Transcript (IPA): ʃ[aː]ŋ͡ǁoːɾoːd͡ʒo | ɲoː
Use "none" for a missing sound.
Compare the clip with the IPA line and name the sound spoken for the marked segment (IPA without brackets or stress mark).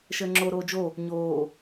əː